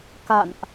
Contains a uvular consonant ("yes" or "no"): no